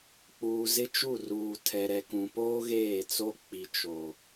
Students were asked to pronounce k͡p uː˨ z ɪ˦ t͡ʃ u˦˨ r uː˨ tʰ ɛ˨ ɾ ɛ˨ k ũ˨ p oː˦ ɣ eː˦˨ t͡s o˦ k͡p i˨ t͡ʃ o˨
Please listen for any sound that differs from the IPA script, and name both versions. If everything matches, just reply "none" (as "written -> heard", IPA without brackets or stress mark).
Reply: none